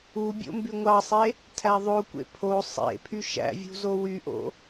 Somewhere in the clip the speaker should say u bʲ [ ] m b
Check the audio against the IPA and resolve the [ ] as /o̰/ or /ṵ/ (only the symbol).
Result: o̰